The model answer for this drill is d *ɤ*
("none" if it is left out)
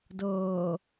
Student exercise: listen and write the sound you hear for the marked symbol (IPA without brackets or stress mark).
ɤː